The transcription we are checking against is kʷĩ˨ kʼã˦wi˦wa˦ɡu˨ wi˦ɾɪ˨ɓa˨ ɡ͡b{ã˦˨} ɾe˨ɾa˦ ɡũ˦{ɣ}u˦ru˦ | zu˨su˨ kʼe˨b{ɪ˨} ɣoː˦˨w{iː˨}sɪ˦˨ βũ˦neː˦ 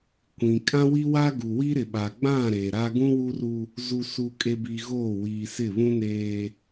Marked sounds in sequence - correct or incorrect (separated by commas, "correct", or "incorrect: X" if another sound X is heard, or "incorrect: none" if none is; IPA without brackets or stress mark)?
correct, incorrect: w, incorrect: i˨, correct